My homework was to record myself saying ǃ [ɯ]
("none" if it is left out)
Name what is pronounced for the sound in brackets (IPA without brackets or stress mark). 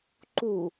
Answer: u